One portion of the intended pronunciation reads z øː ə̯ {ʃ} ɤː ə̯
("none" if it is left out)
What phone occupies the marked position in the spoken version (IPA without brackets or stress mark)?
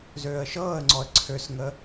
ʃ